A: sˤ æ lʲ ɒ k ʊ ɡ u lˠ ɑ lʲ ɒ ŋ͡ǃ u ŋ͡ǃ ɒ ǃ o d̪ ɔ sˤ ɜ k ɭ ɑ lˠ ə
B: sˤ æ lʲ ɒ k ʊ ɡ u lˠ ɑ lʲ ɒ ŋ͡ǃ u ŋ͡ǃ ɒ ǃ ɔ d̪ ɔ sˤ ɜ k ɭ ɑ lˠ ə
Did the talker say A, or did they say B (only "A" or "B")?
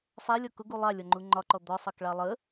B